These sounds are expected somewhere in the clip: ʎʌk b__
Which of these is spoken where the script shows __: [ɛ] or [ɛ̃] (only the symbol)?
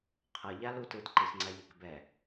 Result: ɛ